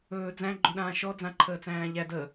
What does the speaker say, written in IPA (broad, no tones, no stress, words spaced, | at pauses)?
ɵː d͡zæ̃ ɡ͡ǃɵɗãːʃɔ d͡zãǃʰəːt͡sæ̃ːʎæ də